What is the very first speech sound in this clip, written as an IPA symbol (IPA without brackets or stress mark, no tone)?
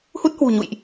h